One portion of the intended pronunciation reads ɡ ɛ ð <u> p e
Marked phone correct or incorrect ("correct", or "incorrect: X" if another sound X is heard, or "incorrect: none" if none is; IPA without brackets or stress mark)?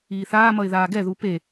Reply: correct